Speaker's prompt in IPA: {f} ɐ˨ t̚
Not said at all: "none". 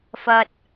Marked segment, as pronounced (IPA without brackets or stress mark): f